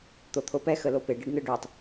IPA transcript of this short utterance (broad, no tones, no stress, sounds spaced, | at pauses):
t̪ o t̪ʰ o p ɛ x ə l o p e ɖ ɯ ɖ n ɯ ɖ ø tˤ